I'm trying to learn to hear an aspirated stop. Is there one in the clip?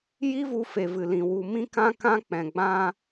no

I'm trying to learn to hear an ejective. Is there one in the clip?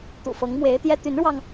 no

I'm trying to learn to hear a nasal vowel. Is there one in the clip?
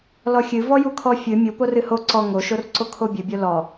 no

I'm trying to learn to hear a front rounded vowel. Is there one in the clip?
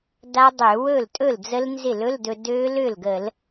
yes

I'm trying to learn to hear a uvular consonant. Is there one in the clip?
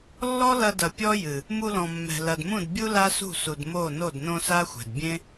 no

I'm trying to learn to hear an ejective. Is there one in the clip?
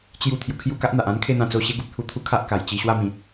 no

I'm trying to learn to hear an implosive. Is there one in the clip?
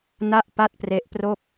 no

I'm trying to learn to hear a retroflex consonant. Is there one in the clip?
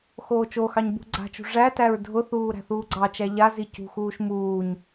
yes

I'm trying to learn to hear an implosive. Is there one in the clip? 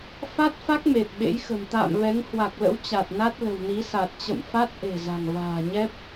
yes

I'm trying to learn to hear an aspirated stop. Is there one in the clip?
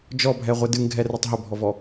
no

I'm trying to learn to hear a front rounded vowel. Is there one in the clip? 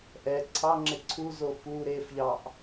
no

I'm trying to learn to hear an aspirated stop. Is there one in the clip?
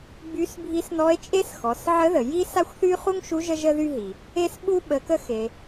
no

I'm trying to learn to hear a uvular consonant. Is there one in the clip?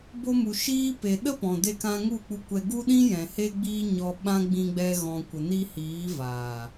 no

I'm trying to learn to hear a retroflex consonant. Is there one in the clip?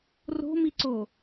no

